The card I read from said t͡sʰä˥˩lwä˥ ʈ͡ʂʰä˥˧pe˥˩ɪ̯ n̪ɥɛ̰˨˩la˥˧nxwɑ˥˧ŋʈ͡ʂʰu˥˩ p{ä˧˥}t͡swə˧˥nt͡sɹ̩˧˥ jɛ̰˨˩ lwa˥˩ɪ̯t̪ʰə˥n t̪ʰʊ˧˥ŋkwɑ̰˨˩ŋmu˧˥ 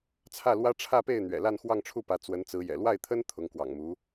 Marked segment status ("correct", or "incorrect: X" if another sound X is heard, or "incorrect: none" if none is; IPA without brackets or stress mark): correct